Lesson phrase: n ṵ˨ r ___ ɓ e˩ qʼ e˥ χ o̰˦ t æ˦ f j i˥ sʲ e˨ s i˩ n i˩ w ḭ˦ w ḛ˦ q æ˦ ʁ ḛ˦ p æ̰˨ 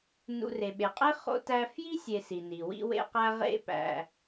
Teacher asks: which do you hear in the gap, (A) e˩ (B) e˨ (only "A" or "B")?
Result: A